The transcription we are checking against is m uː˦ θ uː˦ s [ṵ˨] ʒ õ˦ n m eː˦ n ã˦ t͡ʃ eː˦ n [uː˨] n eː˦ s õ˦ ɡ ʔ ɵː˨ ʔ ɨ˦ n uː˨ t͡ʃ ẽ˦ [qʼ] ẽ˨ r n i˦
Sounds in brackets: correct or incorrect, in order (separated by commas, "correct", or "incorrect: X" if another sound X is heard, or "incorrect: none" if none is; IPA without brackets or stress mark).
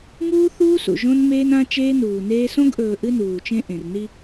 correct, correct, incorrect: ʔ